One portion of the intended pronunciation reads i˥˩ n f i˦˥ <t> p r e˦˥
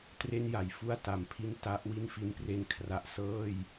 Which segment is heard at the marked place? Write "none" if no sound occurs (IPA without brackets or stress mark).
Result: n